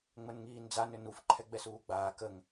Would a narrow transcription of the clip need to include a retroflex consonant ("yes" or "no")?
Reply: no